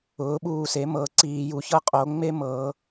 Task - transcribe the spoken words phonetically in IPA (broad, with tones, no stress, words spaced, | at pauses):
ʊː˩˥ɓuː˧˩se˩˥mɤ˧˩˧ ǀiː˧˩˧ju˩˧çɤ˦ qʼo˩˧ŋ͡me˦mɤː˩˧